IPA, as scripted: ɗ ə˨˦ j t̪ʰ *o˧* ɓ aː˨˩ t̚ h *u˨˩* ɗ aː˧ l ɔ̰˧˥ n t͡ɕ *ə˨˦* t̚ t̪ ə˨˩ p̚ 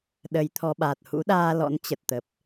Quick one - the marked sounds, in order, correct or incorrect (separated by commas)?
incorrect, incorrect, incorrect